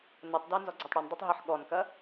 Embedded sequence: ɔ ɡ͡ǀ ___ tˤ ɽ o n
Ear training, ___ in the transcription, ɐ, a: a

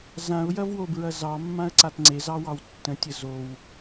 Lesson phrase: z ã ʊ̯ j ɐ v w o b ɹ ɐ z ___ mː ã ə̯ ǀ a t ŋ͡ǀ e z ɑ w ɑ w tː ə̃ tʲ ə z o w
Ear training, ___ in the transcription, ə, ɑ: ɑ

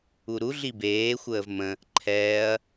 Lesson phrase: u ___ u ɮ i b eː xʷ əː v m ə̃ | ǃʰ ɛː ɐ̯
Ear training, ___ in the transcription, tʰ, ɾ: ɾ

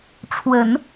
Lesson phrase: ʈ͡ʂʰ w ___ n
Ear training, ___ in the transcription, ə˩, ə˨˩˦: ə˨˩˦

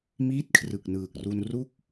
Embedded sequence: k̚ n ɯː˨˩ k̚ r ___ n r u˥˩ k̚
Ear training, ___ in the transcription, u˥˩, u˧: u˧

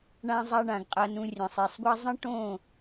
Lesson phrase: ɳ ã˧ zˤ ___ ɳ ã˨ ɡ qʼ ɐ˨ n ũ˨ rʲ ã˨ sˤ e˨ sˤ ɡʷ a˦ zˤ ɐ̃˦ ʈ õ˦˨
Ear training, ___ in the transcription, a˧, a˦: a˧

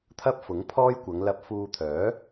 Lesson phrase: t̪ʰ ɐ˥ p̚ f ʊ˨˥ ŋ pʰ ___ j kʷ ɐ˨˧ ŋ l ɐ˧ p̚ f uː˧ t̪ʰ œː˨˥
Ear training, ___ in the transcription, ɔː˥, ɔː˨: ɔː˥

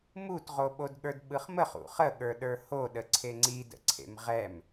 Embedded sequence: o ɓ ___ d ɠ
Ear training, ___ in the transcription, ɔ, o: o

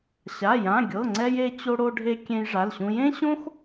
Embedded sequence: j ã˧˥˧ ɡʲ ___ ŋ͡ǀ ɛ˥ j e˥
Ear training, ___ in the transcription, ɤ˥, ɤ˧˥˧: ɤ˧˥˧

